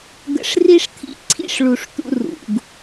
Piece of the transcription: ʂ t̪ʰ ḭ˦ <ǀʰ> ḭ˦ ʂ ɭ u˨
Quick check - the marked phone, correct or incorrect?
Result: correct